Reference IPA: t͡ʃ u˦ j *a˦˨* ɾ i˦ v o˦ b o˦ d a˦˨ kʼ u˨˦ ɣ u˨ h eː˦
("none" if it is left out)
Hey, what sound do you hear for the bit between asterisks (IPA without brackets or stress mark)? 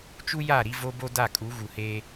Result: a˦˨